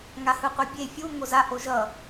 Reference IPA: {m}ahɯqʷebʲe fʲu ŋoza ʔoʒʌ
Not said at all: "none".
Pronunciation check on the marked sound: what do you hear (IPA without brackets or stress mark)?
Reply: ŋ